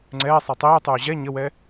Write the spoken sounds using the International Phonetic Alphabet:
ŋ͡ǀɛː sˤɛtˤiːtˤʉː ʑɛ ɲəwɛ

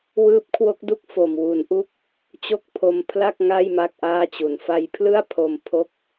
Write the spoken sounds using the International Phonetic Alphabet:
wɯː˦˥p̚kʰwo˦˥k̚du˥˩k̚ fo˨˩m wu˩˦nʔu˦˥k̚ | t͡ɕo˦˥k̚pʰo˧m pʰla˥˩k̚ŋa˥˩j ma˥˩k̚ʔaː˥˩t͡ɕu˩˦n fa˧jpʰlɯ˥˩a̯ pʰo˧m pʰo˦˥k̚

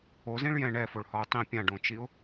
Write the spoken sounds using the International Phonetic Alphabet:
ozĩɭ jɛ̃ ɳɛfoɭhɒʊ̯ tˤĩ pʲãɖõt͡ʃiʊ̯

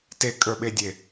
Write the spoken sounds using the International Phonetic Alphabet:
tekʼə˞ɓedʲe

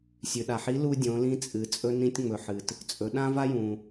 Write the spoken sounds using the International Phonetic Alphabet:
sʲʉ˩ɗa˩ħi˧˥ lu˧ dʲõ˩˧lĩ˧t͡sʼɨ˩ t͡sʼɵ˧nĩ˧tʲŋ͡mɵ˩ ħɨ˩t | t͡sʼɵ˩˧ɗã˥va˥jũ˩

